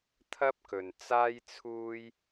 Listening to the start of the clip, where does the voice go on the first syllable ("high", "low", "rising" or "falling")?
high